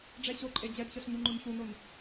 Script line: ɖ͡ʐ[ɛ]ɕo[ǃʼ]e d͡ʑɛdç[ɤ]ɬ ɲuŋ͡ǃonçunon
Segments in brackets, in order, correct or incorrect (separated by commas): correct, correct, correct